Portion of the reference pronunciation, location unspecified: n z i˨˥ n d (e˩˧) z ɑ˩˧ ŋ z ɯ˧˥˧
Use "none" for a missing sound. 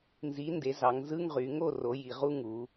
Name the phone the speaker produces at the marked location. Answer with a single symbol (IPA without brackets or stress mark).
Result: e˩˧